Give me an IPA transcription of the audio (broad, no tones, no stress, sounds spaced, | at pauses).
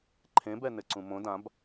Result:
ǃʰ ẽ b ɛ n ɘ ǀ ũ m õ d ã b